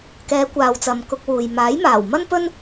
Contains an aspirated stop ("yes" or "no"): no